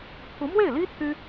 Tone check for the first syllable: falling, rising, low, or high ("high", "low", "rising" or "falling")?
rising